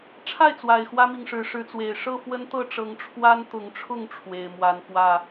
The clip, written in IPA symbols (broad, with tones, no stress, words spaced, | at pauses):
ʈ͡ʂʰa˥˨ɪ̯t͡swa˨˩ɪ̯ xwä˦mi˨ŋʂɻ̩˨˦ ʂɻ̩˨˦t͡swe˨˩ɪ̯ ʂɤ˥˨fwə˦nt̪ɤ˥˨ ʈ͡ʂɤ˨˦ŋ ʈ͡ʂʰwa˦nt̪ʊ˨˦ŋʈ͡ʂʰʊ˥˨ŋ ʈ͡ʂʰwe˨˩ɪ̯mwa˨˦nfwä˥˨